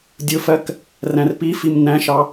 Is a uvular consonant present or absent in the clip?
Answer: absent